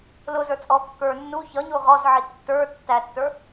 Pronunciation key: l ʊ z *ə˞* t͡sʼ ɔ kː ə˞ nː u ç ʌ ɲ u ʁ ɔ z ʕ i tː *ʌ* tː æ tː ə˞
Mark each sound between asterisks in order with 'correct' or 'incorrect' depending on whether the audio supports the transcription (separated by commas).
correct, incorrect